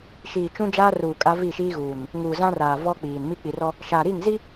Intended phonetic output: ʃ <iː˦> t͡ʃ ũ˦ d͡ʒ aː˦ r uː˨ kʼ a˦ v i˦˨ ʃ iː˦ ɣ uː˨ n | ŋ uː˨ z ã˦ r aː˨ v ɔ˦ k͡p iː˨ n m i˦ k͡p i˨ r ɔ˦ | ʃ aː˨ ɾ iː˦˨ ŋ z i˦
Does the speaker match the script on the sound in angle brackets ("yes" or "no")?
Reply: no